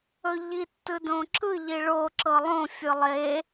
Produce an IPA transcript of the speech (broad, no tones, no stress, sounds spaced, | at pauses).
ɵ ʎ i tː ɯ d õ ǁ ɯ ʎ i ɭ o ǁ ɤ lˠ õ fʲ ɯ lˠ e